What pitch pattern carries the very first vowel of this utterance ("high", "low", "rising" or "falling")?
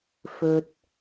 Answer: low